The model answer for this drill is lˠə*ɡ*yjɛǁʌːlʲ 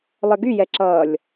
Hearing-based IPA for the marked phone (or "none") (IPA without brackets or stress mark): ɡ